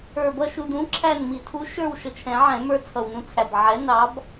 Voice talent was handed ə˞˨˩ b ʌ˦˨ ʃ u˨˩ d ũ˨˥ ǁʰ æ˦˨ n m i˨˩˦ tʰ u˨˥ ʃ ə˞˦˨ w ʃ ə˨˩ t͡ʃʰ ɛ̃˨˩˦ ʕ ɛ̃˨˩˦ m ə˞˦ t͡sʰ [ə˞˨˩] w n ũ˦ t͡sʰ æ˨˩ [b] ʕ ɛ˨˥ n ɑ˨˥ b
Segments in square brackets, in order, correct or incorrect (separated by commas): incorrect, correct